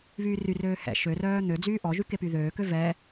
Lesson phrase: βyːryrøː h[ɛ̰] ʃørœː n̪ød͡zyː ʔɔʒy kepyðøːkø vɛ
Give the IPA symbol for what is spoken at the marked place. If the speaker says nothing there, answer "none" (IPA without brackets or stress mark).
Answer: ɛ̰